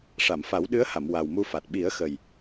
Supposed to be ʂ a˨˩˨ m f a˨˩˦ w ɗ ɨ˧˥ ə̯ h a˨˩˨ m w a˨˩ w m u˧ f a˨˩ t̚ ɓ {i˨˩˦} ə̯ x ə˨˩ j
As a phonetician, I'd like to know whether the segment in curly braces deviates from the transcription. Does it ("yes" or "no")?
no